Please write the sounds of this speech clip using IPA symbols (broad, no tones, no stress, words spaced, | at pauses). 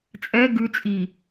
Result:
t͡sʼɛ ɡʉt͡sʼi